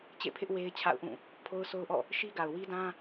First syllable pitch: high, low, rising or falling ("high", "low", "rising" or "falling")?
falling